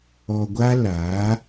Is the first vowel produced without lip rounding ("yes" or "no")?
no